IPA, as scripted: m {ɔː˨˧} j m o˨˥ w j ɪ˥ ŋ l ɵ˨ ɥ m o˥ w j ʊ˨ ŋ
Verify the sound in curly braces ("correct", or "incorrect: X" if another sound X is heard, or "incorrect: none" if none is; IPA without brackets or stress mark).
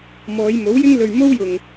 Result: correct